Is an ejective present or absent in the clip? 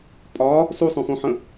present